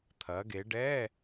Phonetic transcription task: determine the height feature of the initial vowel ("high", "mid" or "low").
low